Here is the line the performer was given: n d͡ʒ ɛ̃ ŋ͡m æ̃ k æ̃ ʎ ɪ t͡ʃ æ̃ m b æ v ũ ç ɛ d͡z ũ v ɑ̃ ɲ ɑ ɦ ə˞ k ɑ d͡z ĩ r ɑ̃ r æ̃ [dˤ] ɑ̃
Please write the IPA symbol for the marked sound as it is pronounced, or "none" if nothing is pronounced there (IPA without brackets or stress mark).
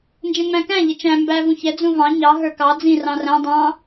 dˤ